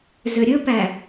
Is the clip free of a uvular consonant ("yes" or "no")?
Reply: yes